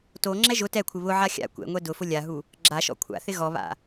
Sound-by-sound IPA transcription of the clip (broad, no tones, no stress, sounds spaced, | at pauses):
t o ŋ͡ǁ ɛ ʒ ʊ t ɛ kʷʰ ɪ β ʊ ʕ a xʲ a̰ kʷ ɛ̰ ŋʷ ɛ d ʊ f ʊ lʲ a ɦ u | ɡ͡ǁ a ʃ ɔ̰ kʷʰ a̰ θ ɪ ɣ ɔ β a̰